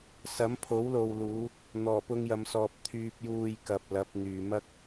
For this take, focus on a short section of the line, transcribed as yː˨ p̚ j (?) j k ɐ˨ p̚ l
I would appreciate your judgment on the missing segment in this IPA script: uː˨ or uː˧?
uː˨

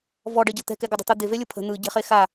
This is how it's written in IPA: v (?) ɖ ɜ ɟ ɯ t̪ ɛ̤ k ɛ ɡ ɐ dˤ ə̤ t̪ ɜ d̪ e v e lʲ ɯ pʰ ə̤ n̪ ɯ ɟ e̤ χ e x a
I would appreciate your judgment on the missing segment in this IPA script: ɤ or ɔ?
ɔ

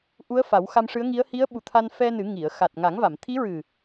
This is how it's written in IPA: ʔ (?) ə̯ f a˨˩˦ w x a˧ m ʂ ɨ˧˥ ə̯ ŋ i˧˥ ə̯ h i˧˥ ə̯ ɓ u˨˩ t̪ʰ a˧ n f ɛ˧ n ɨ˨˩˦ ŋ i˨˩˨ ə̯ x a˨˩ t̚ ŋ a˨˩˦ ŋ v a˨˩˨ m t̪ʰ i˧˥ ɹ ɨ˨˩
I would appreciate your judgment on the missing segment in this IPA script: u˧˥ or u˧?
u˧˥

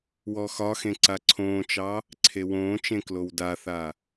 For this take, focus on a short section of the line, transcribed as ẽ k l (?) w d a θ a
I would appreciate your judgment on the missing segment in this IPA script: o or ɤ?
o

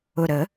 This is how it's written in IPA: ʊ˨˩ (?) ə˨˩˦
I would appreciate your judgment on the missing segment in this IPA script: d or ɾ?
ɾ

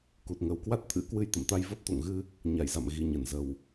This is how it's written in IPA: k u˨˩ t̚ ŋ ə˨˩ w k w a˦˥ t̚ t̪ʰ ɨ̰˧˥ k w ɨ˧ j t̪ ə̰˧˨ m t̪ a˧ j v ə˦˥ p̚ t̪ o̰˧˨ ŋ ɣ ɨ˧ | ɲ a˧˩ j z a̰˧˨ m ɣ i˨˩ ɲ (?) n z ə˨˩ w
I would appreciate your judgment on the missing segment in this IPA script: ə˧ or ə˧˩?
ə˧˩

